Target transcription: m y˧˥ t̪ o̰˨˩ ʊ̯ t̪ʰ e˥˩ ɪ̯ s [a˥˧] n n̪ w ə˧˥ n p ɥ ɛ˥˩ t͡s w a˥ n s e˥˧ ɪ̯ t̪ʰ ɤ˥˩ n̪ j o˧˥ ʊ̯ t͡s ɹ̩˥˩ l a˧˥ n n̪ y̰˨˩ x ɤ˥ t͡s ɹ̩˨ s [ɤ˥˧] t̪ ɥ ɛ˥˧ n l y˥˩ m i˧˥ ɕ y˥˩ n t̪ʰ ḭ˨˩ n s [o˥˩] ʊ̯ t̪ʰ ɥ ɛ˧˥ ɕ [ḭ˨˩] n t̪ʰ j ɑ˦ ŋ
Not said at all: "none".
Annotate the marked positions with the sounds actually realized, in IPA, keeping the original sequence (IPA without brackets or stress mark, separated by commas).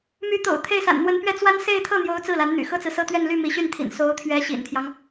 a̰˨˩, ɤ˥, o˧˥, ḭ˨˩